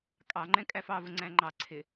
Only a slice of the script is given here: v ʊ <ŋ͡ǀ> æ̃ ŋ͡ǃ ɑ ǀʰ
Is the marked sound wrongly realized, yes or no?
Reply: no